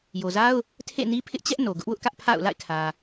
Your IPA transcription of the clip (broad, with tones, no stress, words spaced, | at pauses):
jo˨za˦ʊ̯ | tʰḛ˦˨ni˦ pʰɪ˦ʔt͡ɕɛ˦ʔ no˨ɡʊ˦ʔwʊ˦ʔkä˦ʔ pʰa̰˦˨ʊ̯ la̰˦˨ɪ̯kʰä˨